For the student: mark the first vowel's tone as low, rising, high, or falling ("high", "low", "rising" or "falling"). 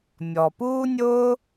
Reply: low